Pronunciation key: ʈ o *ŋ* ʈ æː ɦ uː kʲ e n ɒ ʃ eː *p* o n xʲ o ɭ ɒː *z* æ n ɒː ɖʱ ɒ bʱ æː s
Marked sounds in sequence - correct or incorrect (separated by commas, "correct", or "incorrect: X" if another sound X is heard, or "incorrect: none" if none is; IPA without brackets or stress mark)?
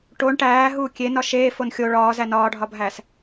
incorrect: ɳ, incorrect: f, correct